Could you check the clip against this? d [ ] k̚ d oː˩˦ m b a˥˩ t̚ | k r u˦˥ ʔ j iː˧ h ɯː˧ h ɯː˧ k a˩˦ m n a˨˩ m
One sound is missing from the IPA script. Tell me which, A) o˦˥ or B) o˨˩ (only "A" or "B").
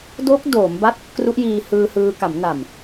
A